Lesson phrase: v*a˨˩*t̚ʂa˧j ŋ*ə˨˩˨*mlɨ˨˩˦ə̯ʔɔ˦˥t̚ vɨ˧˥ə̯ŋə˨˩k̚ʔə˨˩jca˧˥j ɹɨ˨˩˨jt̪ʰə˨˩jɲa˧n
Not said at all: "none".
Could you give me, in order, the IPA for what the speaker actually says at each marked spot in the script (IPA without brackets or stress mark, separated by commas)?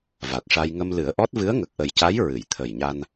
a˨˩, ə˧